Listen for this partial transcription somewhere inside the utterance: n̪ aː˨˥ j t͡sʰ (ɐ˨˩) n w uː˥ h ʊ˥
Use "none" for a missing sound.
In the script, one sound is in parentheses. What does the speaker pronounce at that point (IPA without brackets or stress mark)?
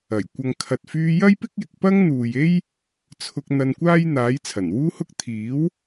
ɐ˨˩